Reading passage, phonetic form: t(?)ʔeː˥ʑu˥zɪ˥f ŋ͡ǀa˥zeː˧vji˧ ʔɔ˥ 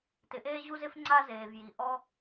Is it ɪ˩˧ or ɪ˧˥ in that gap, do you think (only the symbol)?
ɪ˧˥